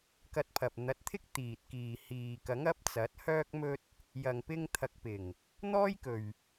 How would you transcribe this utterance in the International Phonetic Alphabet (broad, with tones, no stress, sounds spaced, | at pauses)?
k ɐ˧ t̚ pʰ ɐ˨ p̚ n̪ ɐ˨˥ t̚ t̪ʰ ɪ˥ k̚ t̪ iː˨ t̚ k iː˨ h iː˨ k ɐ˨˥ ŋ ɐ˨˥ p̚ t͡s ɐ˨˥ t̚ h œː˥ k̚ m ɵ˥ t̚ | j ɐ˨ ŋ p ɪ˧ ŋ t̪ʰ ɐ˨ k̚ p ɪ˨˩ ŋ | n̪ ɔː˥ j k ɵ˨ ɥ